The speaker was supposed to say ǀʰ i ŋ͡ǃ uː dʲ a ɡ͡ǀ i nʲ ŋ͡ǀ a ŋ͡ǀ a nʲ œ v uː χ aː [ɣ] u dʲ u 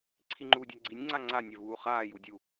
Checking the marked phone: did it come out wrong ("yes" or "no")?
yes